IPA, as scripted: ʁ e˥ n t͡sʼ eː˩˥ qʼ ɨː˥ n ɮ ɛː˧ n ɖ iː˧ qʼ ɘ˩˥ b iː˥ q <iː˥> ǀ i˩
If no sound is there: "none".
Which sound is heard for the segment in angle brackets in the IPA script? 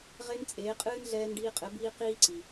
iː˥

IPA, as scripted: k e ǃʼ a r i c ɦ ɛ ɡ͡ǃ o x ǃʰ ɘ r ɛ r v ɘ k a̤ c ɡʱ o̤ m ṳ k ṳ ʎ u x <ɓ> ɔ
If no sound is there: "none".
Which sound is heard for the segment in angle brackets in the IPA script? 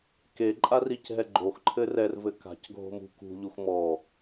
m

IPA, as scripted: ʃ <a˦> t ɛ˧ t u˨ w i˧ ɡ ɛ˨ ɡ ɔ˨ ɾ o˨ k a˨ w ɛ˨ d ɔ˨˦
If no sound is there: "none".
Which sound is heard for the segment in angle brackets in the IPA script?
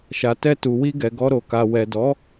a˨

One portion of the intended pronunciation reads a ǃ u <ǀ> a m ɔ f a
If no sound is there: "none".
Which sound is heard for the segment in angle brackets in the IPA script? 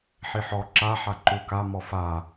k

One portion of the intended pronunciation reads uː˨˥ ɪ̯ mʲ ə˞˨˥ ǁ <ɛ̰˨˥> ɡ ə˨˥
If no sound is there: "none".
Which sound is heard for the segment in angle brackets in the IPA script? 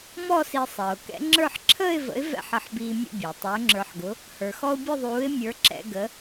ɛ̰˧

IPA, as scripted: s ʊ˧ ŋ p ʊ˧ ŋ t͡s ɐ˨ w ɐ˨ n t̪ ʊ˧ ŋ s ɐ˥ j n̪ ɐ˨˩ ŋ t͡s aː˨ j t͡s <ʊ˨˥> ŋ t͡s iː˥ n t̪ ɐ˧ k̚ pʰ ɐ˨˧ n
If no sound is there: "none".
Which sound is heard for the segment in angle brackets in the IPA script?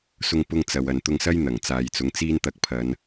ʊ˨˥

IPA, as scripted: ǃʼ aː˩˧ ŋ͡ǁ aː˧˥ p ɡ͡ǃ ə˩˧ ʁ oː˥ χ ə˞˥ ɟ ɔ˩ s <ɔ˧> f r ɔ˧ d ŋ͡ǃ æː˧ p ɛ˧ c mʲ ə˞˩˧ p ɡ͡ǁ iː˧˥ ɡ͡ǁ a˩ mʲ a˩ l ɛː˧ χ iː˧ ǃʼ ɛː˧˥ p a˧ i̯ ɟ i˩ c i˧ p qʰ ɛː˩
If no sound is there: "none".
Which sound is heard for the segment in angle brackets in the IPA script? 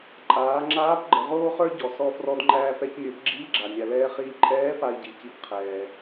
ɔ˧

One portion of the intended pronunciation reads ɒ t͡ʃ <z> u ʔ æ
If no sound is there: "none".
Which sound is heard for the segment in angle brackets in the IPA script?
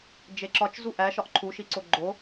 z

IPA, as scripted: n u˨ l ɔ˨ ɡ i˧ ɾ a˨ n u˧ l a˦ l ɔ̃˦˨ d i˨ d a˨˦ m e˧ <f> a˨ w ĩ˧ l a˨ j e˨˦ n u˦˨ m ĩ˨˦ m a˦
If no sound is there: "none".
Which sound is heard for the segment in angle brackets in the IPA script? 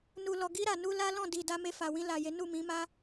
f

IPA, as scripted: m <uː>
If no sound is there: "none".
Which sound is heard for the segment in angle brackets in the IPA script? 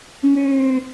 ʉː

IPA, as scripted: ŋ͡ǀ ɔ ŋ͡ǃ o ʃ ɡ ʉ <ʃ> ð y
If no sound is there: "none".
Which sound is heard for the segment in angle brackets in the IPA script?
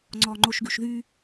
ʃ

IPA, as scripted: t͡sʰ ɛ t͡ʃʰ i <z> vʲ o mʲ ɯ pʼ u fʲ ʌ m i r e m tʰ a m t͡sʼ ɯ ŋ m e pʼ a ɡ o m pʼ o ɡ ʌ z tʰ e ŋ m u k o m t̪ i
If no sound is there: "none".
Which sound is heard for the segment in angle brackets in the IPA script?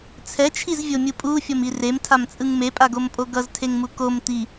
z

